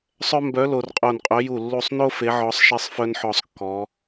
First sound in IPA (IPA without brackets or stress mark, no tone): sˤ